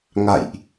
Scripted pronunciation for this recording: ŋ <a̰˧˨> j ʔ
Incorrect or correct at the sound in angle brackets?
correct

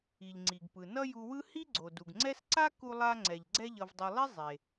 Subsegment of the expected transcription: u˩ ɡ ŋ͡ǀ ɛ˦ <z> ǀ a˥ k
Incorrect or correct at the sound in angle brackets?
incorrect: s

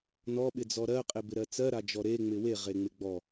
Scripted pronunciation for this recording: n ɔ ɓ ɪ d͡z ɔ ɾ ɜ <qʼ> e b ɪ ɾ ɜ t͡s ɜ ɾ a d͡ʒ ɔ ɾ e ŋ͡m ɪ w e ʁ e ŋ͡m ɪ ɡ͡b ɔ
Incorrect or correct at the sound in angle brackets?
correct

